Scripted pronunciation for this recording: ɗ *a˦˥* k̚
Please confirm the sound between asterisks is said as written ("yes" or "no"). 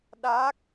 no